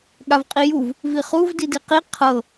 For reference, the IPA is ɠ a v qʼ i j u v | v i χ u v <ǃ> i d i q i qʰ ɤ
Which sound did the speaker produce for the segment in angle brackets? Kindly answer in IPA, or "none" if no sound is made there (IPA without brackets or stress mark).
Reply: d